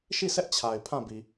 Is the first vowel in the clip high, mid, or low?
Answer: high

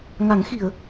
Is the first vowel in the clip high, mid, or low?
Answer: low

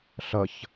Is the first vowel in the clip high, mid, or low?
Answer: mid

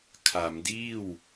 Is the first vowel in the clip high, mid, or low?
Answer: low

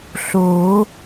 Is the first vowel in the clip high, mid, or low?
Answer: mid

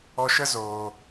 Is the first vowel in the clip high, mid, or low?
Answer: mid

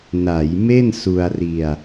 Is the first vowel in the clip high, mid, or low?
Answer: low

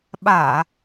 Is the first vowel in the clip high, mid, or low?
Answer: low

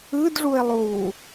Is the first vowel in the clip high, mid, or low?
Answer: high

